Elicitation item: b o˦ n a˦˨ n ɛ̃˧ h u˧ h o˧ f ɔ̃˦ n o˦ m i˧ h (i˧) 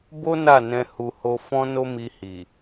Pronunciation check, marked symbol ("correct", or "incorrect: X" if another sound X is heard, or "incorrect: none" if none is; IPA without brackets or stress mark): incorrect: i˨